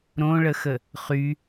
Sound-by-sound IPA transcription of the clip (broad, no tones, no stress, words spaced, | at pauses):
ɾõɭəxə | χy